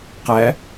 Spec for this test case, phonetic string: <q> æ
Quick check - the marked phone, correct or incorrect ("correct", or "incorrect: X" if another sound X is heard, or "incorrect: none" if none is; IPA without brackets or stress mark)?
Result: correct